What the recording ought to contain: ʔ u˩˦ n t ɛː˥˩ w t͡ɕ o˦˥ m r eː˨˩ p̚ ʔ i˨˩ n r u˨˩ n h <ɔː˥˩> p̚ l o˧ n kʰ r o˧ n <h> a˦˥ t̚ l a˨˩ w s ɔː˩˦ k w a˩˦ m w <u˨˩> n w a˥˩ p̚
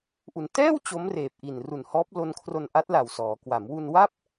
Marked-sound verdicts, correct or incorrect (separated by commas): incorrect, incorrect, incorrect